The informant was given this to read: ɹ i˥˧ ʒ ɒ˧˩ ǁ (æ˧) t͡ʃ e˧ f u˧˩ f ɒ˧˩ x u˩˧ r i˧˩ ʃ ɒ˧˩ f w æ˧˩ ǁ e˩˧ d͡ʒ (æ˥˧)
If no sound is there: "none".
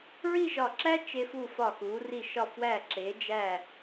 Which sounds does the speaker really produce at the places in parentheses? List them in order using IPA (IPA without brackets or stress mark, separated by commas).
æ˥, æ˧˩